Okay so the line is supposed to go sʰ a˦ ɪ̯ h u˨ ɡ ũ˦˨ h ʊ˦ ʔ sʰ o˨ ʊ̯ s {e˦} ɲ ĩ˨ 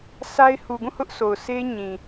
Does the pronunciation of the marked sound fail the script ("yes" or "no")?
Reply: no